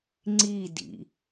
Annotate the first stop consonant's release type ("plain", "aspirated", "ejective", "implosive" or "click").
click